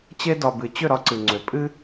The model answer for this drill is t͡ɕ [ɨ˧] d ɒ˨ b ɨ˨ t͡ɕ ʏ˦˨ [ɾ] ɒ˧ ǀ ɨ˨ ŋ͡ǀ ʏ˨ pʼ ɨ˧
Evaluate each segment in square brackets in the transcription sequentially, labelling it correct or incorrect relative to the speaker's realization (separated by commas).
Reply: incorrect, correct